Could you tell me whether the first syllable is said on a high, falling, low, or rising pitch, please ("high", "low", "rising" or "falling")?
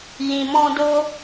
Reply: low